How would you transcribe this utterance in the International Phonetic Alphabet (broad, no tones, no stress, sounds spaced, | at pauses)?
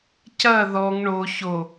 c ɐ ð ɔ ŋ ɳ o ç o